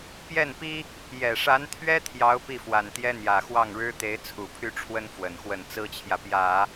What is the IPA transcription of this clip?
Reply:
p j ɛ˥˩ n p i˥ | j ɛ˨˩ ʂ a˧˥ n t̪ʰ ɥ ɛ˥ t̪ʰ j ɑ˧˥ ʊ̯ p i˥˩ f w a˨˩ n t̪ j ɛ˥ n̪ j ä˨˩ x w ɑ˥˩ ŋ ɻ ɻ̩˥ t̪ e˧˥ ɪ̯ t͡sʰ u˨˩ pʰ y˥˩ ʈ͡ʂʰ w ə˥ n f w ə˨˩ n x w ə˥˩ n t͡s ɹ̩˥ t͡ɕʰ j ä˨ p j ä˨˩˦

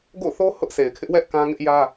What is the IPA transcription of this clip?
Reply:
ɡ o̰˦˨ θ o˦ h ʊ˦ ʔ sʰ e˨ ɪ̯ kʰ ɪ˦ ʔ w ɛ˦ ʔ k ã˦ ŋ ɪ˦ ʔ j ä˦

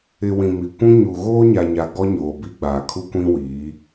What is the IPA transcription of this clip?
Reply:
ɪ˨ w ĩ˨ m i˨ kʷ ũ˦ ɲ u˨ ɣ oː˦ ɲ a˨ ɲ a˨ ɡ ɔ˦ ɲ oː˨ b i˦ ɡ͡b aː˨ kʰ u˦ kʷ ĩ˦ w iː˨˦

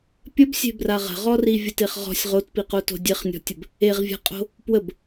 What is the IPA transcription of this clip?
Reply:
pʲ ə b sʲ e̤ b r a ʁ ə̤ ʁ ɔ r i vʲ ə t e χ ʁ ɔ̤ sʲ ʁ o t p i q o t o̤ dʲ e χ nʲ ɔ̤ tʲ ə b | e ʁ vʲ a̤ qʼ o̤ | p w ə b

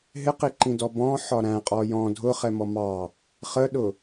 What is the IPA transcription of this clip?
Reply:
ɦ ɪ q i ǃ ĩ d ɔ b ɔ̃ ħ ɒ ɾ æ̃ qʼ ɔ j ɔ̃ dʱ ʊ χ ɛ m ɔ m ɑ | χ ə ɗ ʊ

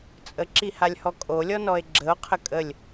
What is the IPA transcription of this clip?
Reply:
t͡sʼ ə ǁ i h a lʲ h ɔ kʼ o lʲ ɔ n ɔ e̯ ɡ͡ǁ ə o̯ qʰ ə kʼ ə lʲ

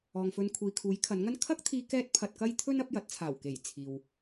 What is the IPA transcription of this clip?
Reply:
ɔː˨ ŋ f ɵ˧ n kʷʰ iː˨ kʰ uː˨˥ j kʰ ɐ˨˥ n ŋ ɐ˥ n kʰ ɐ˥ k̚ t̪ʰ iː˧ k ɛː˥ t̚ pʰ ɐ˧ t̚ k ɐ˥ j t̪ʰ ɵ˥ n ɐ˨˥ p̚ j ɐ˨˥ t̚ t͡sʰ aː˨˩ w k e˨˩ j t͡sʰ iː˨ w

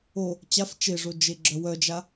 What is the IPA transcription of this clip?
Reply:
o | t͡ɕ a f t͡ʃ e ʐ o d͡ʒ e ɡ͡ǁ œ w œ d͡ʒ a

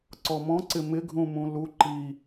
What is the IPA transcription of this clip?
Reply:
ǀ ɔ m ɔ̃ ǀ ɪ m ɪ ɡʱ ũ m ũ l u ǃ i

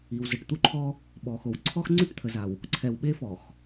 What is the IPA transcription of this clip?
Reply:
i˨ w z ə˨ ʈ t̪ u˦ ǃʰ ɔ˦ | ɓ ɔ˨ x o˨ w ǀʰ ɔ˦ x ŋ͡ǀ y˦ ʈ t̪ʰ ə˨ z a˨ w | ǀʰ ɛ˨ w ɓ e˦ f ɔ˨ x

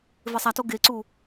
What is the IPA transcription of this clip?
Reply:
v e sˤ a t o ɡ e ǀ u

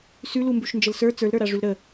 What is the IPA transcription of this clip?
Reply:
s ʉ l u m b ʉ ʃ n d͡ʒ ə l s ə˞ t͡s ə˞ l ɾ ə˞ ɾ a ʐ ʉ l ɾ ə

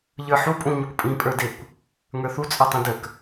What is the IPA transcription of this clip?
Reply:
ʎ ə˞ ħ u pʼ ũ ɲ ə kʷ pʼ ĩ pʼ ə˞ d e kʷ | ŋ ə˞ θ u t͡sʼ ə˞ tˤ ũ d ə k

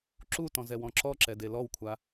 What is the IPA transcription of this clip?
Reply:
ǁ u t ɔ̃ z ɛ w ɔ̃ ǁ ɔ ǁ ɛ d e l ɔ w kʷʰ a

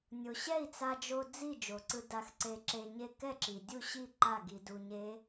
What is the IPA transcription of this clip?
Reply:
nʲ o˩ ɕ ɛ˥˨ i̯ t͡s a˧ d͡ʒ o˧ d͡z i˥˨ d͡ʒ o˩ ǀ ɯ˧ d a˧ x ǀ e˧ ǁ e˧ ɲ e˧ k ɛ˥˨ ǁ i˩ dʲ u˥˨ ɕ i˥˨ ǃ a˥˨ ɡ i˧ d u˧ ɲ e˦˥

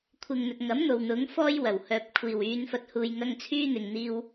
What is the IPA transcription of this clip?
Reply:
kʷʰ ɪ˨ ŋ n̪ ɵ˨ t̚ ŋ ɐ˨˥ m n̪ o˨ w n̪ ʊ˨˥ ŋ f ɔː˥ j w ɐ˨˩ w h œː˨ p̚ kʷʰ iː˨˩ w yː˨˧ n f ɐ˨ t̚ h uː˨ j ŋ ɐ˧ ŋ t͡sʰ yː˥ n̪ ɪ˨ ŋ n̪ iː˧ w

